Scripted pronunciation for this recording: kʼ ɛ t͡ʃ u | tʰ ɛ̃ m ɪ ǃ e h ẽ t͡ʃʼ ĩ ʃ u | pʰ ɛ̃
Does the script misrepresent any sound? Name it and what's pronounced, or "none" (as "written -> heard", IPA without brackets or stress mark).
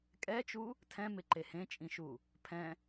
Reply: none